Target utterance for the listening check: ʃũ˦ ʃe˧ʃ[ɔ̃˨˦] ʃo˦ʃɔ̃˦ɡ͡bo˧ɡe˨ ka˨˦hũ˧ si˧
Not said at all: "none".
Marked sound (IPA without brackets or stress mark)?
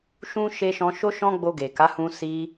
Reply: ɔ̃˧